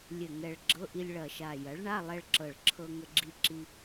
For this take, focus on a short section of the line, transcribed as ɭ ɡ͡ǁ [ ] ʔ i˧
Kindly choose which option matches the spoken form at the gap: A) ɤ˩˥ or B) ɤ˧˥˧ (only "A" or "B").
B